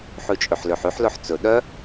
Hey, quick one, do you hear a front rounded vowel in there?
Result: yes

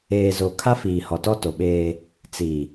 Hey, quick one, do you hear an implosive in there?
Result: yes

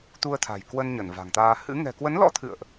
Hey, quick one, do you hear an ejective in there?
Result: no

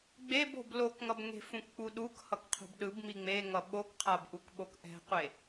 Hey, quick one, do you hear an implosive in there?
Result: yes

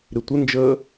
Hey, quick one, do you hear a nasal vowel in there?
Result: no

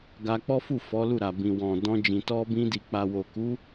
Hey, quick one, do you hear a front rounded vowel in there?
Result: no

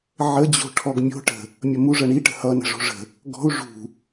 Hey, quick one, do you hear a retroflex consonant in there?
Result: yes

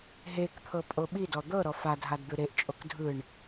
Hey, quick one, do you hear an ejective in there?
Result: yes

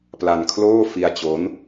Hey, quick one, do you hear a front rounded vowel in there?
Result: no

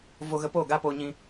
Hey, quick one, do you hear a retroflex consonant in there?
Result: no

